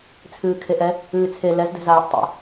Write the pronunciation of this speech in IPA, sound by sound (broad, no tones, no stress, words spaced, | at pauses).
t͡sʰɨːkʰeʔɛ | ɨːt͡sʰe lɛzdɛ̤zaːʔ tˤɛ̰